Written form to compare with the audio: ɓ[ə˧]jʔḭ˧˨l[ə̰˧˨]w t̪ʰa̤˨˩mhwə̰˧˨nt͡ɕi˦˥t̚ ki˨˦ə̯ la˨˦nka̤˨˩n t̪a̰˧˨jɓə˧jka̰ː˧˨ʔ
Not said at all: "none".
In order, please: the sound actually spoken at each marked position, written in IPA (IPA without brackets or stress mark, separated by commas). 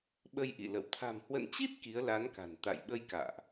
ə˧, ə̰˧˨